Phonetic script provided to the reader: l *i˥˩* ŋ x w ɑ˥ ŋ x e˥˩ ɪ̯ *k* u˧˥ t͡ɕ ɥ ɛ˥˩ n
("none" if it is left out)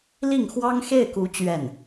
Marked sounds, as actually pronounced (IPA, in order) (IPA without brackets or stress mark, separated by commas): i˥˩, k